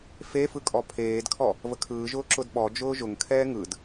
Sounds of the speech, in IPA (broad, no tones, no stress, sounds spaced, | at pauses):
f e f ɯ kʼ ɔ pʰ eː d kʰ ɔ | v ə kʰ ɯː ʒ ʊː ǁ ʊ d ɓ ɔ d͡ʒ ʊː ʒ ʊ ŋ kʰ ɛː ŋ ɯ d